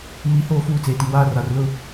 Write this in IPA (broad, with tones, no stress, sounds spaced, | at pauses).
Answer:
m i˨ h oː˦˨ f uː˦˨ t͡s eː˨ t i˨ w aː˦ r a˨ r l ʊ˦˨